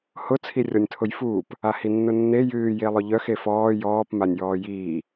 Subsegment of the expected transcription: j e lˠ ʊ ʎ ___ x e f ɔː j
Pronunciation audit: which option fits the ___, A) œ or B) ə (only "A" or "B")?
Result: A